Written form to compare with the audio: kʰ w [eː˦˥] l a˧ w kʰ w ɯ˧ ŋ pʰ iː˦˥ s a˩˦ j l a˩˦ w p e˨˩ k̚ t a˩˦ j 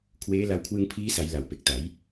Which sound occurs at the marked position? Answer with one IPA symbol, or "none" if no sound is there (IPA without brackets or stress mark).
eː˦˥